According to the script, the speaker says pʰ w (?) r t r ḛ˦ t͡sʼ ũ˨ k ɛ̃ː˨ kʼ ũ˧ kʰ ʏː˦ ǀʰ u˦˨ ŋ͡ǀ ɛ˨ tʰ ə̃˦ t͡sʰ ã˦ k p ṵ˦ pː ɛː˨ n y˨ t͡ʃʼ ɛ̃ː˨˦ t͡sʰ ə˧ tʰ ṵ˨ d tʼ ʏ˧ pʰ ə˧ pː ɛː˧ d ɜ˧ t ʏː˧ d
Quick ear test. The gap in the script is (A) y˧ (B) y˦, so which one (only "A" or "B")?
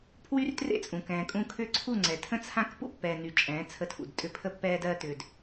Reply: B